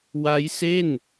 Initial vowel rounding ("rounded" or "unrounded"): unrounded